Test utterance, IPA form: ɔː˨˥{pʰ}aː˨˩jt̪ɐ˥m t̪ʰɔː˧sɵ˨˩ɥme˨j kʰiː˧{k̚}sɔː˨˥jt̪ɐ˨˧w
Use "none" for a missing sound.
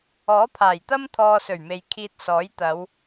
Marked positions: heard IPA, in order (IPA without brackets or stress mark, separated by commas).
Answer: pʰ, t̚